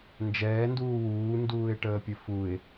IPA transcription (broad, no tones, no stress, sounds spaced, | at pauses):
n d͡ʒ ɛː n d uː w uː n d uː ɪ̯ ʈ əː pʲ ɘ f u ɪ̯